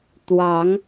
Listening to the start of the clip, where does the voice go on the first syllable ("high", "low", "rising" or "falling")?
rising